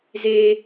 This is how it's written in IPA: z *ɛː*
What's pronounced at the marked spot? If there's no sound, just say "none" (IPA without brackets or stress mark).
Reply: eː